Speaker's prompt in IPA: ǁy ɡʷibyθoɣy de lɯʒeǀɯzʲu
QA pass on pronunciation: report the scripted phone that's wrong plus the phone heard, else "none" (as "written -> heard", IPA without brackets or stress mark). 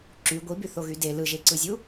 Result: none